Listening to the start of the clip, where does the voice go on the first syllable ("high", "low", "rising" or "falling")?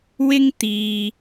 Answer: high